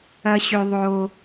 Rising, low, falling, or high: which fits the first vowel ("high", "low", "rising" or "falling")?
high